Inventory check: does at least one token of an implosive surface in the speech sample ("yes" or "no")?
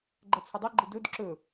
no